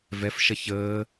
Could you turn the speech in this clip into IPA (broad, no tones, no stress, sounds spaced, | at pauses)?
v ɛ f ʃ ɐ ç əː